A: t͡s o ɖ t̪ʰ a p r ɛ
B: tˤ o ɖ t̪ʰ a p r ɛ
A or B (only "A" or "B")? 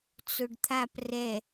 A